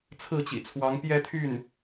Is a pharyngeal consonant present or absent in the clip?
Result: absent